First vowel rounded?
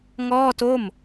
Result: yes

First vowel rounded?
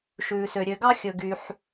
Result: yes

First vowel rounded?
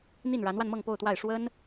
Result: no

